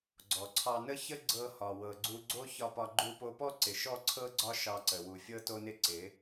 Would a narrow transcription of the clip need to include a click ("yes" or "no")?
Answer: yes